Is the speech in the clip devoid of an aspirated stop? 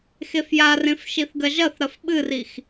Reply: yes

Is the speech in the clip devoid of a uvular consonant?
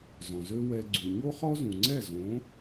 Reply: no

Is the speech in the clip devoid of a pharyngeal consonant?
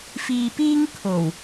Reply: yes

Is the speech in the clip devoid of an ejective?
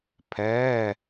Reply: yes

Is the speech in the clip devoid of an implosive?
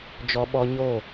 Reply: no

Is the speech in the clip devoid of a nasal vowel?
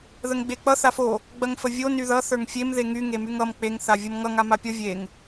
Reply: yes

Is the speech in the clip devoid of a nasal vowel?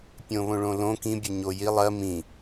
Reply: no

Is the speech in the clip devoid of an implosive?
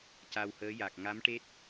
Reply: yes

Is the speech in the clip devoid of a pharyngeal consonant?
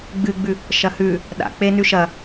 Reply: yes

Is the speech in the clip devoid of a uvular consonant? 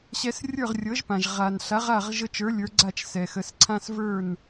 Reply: no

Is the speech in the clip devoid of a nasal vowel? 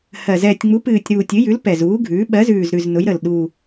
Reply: yes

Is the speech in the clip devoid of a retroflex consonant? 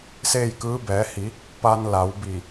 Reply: yes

